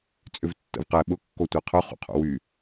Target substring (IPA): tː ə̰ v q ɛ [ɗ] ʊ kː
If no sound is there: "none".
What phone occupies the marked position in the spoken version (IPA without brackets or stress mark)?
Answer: ɓ